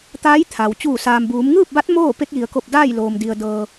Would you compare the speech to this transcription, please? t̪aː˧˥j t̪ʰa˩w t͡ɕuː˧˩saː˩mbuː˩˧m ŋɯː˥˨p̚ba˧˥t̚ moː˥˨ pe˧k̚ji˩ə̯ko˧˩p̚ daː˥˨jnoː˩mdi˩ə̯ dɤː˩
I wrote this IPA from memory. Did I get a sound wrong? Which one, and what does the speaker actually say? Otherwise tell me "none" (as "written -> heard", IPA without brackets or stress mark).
n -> l